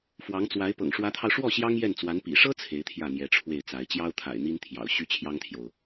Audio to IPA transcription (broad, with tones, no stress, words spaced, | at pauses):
fwɑ˧˥ŋt͡swa˧˥ɪ̯ pɤ̰˨˩ŋʂwä˧˥t̪ʰɑ˧ʊ̯ʂwɔ˥˩ ɕjɑ˥ŋjɛ˥˩nt͡swa˧˥n pḭ˨˩ʂɤ˥ t͡sʰe˧˥ɪ̯t̪ʰjä˥˩n̪jɛ˧˥ʈ͡ʂʰwe˥˩ɪ̯ t͡sa˧˥ɪ̯ t͡ɕjɑ˥ʊ̯t̪ʰa̰˨˩ɪ̯ n̪i˥nt̪ʰjɑ̰˨˩ʊ̯ ɕy˥t͡ɕʰjɑ˥ŋt̪ʰjo˨ʊ̯